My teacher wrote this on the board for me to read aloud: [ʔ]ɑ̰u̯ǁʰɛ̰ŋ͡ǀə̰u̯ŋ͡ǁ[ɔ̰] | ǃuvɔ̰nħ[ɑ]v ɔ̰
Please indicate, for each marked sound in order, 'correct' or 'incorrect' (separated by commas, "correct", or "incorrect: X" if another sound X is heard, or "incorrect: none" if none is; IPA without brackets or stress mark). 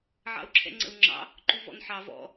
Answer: incorrect: ʕ, incorrect: ɑ̰, correct